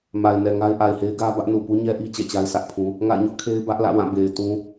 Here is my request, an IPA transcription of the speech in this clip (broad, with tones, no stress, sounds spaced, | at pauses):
m a˨ ɪ̯ n ɛ˨ ŋ a˦ ɪ̯ ʔ a˨ ɪ̯ h e˦ ɪ̯ ɡ ä˦ b ä˦ ʔ n u˨ p u˦ ɲ ɛ˦ ʔ i˦ t͡ɕ ɛ̰˦˨ t͡ɕ a˦ ɪ̯ s ä˦ ʔ pʰ ũ˦ | ŋ a̰˦˨ ɪ̯ ɲ ʊ˦ ʔ kʰ e˦ ɪ̯ b ä˦ ʔ l ä̰˦˨ w ã˦˨ b e˨ ɪ̯ t ũ˦